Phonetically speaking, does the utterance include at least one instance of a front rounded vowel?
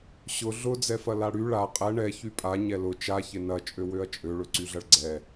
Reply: yes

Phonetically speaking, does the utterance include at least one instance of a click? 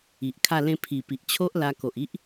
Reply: no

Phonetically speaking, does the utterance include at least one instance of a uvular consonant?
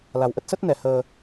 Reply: no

